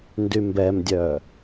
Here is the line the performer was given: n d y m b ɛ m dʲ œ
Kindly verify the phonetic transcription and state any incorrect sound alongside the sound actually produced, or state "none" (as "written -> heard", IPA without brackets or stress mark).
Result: none